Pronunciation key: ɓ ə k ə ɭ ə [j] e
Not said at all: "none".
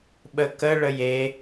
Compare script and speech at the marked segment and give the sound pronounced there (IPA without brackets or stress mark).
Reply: j